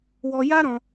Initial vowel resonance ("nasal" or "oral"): oral